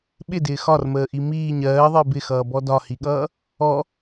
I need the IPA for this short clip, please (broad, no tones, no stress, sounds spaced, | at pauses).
ɓ ɪ d ɪː x ɒ r m əː ʔ i m iː ɲ ɜː ðˤ ɪː b ɪ x ʌː b ɔ d ɒ h i ɠ ʌː | ɔ